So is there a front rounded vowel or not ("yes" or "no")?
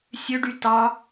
yes